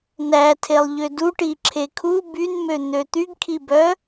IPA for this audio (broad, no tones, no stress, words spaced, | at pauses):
nætʰelˠ ʎøduʈi ǁʰekʰu bynmøn̪ø t̪yɡkʰibœ